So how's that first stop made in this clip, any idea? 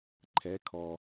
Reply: click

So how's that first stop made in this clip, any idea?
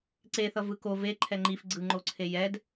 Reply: click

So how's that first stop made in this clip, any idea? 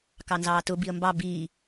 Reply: plain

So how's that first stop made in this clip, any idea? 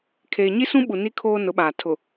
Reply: aspirated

